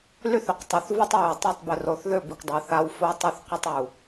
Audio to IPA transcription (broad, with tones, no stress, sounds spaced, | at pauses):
l y˦ θ ʏ˨ q tˤ y˨ θ v u˦ tˤ w y˨ w tˤ ɛ˦˨ tˤ b ʏ˨ r o˨ θ ð ʏ˦˨ b i˨ kʷ dˤ ʏ˨˦ θ a˦ w f o˦ tˤ y˦ θ q ʏ˦ tˤ u˨